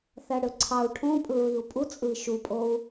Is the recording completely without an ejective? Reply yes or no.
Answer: no